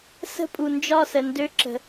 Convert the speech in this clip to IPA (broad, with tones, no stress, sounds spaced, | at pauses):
s ə̤˦ pʼ u˨ n d͡ʒ ɒ˦˨ s ə˨ n d ø˦ ǁ ə̤˨